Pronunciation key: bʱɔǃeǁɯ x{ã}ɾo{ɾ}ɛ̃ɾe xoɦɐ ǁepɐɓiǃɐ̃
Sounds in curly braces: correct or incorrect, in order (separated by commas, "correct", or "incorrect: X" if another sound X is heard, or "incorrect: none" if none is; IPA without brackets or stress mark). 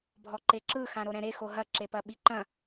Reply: correct, correct